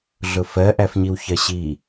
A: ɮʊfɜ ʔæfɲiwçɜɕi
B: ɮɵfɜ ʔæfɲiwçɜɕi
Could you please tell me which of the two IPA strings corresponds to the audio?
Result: A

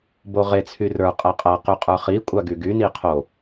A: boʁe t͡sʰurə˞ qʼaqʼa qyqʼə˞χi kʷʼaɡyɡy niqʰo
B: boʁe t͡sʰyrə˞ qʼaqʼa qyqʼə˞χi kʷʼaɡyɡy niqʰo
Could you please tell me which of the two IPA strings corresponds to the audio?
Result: B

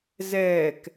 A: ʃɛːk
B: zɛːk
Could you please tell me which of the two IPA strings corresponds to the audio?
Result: B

